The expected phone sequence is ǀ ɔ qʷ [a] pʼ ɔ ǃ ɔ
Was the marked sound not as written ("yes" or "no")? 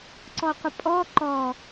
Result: yes